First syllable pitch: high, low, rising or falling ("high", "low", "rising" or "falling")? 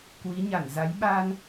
rising